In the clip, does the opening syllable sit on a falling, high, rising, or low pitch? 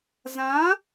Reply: rising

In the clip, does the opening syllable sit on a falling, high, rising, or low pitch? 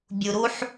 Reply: low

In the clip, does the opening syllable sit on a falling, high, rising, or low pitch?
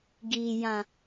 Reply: low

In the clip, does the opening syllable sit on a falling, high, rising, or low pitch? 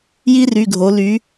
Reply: high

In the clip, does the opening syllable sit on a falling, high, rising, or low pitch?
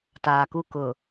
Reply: low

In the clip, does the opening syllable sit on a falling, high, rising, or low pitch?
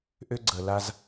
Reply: high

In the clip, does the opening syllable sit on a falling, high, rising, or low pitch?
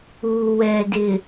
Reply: low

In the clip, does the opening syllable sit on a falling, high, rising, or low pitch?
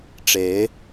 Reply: rising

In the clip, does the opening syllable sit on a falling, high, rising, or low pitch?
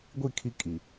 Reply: falling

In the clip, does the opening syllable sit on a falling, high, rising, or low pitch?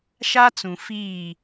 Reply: high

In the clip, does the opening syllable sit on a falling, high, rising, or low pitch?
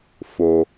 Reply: low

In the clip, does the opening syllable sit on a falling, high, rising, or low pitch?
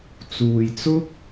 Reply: low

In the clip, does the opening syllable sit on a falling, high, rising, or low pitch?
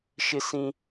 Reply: high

